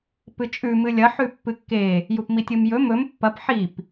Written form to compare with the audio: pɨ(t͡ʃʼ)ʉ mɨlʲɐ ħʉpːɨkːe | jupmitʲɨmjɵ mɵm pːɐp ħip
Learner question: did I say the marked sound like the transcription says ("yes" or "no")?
yes